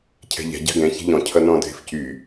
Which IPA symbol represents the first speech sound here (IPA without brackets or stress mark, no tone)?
cʰ